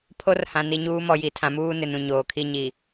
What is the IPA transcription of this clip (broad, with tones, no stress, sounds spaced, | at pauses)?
pʰ o˦ r h ã˨ n i˨ ɲ uː˦ m ɔ˨ j i˨ tʰ ã˨ m uː˦ n ɪ˨ n ũ˨ ɲ oː˨ kʰ i˦ ɲ i˨